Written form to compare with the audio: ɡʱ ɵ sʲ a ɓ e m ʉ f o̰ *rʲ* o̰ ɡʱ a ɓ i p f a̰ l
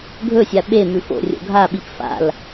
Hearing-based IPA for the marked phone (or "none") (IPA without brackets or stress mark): rʲ